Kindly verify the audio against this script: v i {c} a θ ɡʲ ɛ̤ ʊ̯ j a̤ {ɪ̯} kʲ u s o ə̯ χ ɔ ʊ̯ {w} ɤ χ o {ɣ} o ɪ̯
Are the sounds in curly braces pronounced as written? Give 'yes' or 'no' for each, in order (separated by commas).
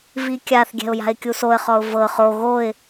no, yes, no, yes